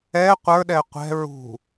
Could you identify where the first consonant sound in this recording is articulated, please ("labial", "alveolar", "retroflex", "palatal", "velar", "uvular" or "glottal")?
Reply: uvular